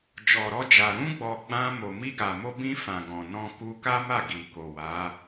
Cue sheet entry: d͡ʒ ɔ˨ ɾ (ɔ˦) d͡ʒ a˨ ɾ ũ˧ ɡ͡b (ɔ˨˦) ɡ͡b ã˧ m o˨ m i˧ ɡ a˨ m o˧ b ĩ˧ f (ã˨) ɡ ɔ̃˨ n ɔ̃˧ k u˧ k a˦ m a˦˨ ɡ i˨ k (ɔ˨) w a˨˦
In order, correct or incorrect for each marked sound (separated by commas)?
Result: incorrect, incorrect, correct, incorrect